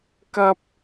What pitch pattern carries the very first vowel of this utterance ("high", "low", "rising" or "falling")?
high